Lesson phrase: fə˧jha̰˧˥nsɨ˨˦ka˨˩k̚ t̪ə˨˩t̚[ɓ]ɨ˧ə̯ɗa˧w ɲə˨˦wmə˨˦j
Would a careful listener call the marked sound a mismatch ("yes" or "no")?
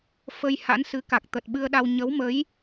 no